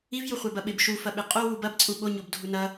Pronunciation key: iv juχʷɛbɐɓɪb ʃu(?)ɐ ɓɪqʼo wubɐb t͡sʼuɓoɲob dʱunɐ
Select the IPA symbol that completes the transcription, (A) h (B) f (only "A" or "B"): B